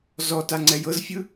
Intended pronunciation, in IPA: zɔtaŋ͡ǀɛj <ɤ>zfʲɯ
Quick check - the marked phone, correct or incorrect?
correct